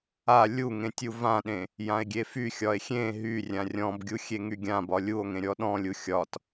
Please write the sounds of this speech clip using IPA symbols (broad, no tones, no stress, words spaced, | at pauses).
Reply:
a lʲuŋẽ tʲuvãɗẽ | jãe̯ɡʲefyxʲɒe̯ xʲẽ ɦy rʲãrʲɔ̃bɡʲu xʲeŋyɡʲãbɒ lʲuo̯ŋẽ ɾʲɔɗɔ̃lʲu xʲɒt